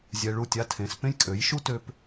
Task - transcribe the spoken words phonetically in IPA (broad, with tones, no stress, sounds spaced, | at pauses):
zʲ ɛ˧ ɭ u˦˨ tʲ a˦ tʰ ẽ˨˦ s p ẽ˦ j kʼ ø˨˦ j ʃ u˦ t ø˧ p